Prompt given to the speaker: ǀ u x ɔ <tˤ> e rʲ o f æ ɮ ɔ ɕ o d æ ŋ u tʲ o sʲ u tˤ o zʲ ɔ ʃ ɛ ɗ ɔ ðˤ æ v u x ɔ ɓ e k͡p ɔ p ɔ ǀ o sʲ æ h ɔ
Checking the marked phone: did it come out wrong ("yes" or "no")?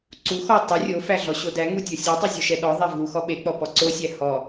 no